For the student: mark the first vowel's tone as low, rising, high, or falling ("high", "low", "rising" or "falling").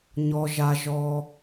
low